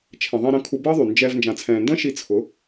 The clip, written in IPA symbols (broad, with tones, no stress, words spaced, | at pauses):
t͡ʃʰɛ̃˨ðˤĩ˧ɾə̃˧ kʰu˧bəː˦ðˤy˨ nd͡ʒɛː˧v nd͡ʒã˨t͡sʰɛ̃ː˨ndə̃ː˦ ʃi˧t͡sʰʊ˨˦